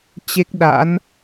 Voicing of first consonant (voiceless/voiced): voiceless